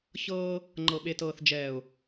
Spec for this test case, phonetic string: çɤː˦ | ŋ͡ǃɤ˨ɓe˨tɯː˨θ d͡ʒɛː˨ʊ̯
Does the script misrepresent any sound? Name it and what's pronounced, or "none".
ɯː˨ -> ɤː˨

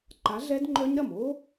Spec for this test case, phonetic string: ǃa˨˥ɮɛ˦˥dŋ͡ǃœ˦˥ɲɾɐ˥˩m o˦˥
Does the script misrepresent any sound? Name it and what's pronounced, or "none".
none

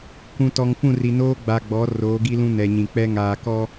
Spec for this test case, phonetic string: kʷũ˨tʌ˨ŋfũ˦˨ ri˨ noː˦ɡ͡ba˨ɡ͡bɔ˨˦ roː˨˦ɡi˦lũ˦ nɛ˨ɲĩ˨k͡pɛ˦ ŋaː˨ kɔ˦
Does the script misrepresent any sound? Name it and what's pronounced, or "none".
ʌ˨ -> ɔ˨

